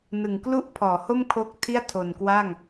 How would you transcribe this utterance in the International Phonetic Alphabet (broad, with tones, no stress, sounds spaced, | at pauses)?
n ɯ˨˩ ŋ k l u˥˩ ʔ pʰ ɔː˩˦ h o˥˩ m kʰ o˥˩ k̚ tʰ i˥˩ a̯ tʰ o˨˩ n k w a˥˩ ŋ